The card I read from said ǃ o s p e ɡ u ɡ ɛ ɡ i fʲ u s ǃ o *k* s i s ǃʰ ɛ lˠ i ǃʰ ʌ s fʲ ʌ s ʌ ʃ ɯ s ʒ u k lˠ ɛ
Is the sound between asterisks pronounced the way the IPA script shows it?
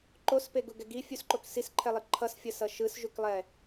yes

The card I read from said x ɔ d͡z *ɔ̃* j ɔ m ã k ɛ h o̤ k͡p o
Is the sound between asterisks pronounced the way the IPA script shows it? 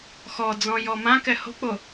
yes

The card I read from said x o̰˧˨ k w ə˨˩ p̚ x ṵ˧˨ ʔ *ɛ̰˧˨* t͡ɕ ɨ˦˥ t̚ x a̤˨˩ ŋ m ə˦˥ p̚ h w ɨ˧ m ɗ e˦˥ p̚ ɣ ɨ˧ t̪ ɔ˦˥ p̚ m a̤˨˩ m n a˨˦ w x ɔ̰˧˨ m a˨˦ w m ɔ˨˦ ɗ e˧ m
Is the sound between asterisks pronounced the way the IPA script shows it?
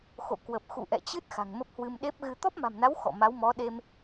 yes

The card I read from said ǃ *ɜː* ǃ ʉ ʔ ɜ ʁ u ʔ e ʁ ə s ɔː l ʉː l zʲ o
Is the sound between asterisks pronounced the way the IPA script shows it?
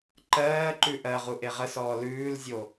yes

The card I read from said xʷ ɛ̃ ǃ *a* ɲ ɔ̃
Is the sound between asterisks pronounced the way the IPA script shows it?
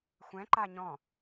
yes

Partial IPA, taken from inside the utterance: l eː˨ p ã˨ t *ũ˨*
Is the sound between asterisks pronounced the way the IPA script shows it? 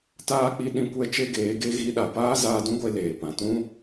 no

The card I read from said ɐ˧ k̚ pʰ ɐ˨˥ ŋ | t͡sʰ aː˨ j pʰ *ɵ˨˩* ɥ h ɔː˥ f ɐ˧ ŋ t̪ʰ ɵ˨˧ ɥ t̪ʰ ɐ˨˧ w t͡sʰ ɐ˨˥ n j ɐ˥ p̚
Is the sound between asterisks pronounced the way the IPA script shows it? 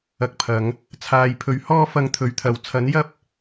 no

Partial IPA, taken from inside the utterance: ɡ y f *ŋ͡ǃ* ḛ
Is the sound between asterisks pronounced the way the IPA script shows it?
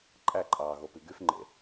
yes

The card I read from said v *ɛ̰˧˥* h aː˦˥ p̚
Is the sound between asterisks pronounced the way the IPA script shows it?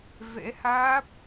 yes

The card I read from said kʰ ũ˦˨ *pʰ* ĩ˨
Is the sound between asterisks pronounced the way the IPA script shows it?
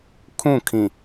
no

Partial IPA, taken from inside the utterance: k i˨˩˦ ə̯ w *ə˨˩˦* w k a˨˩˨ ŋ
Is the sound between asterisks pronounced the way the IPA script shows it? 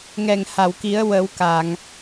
yes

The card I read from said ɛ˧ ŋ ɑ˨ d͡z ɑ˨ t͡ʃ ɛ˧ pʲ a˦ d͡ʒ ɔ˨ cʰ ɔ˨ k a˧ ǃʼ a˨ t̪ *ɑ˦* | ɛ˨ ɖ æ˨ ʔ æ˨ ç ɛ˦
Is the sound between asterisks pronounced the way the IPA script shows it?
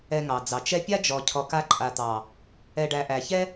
no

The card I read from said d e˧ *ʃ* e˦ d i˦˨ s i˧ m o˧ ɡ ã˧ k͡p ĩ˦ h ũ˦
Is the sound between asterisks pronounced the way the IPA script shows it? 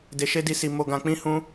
yes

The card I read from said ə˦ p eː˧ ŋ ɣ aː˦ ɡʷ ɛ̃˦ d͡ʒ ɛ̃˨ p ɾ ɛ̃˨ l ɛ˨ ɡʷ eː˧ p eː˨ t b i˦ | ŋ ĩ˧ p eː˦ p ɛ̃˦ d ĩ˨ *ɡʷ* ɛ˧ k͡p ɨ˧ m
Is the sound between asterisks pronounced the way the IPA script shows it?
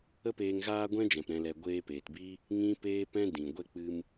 yes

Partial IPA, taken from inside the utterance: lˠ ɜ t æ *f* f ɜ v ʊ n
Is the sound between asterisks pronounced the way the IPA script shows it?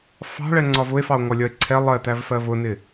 no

